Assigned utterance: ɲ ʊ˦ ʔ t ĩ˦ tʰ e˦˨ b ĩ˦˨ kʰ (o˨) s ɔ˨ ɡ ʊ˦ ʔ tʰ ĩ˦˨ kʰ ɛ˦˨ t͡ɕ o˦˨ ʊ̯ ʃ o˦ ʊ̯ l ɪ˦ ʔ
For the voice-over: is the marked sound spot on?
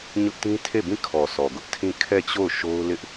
no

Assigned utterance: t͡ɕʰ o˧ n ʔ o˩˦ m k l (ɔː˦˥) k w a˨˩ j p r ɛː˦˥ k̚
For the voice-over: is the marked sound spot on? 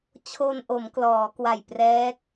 no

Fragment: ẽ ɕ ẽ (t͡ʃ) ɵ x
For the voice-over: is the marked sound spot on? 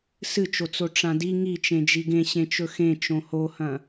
yes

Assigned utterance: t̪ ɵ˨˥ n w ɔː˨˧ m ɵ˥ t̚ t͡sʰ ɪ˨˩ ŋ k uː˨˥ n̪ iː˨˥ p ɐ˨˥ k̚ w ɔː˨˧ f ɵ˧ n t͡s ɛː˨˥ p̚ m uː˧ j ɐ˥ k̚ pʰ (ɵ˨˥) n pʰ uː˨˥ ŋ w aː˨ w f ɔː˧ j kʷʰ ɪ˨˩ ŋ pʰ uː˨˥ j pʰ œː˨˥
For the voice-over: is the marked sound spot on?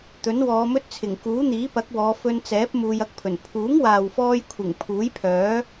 no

